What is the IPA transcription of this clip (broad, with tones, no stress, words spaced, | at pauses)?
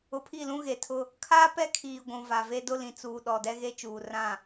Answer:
ʊ˨pʰi˦˨ lũ˦ɣe˨tʰʊ˦ | kʰaː˦pɛ˦kʰiː˨ ɡʷũ˨va˨ve˦dʊ˦ lĩ˨t͡suː˨ ɗɔ˨ dɛ˦ɣe˦t͡ʃuː˨ rã˦˨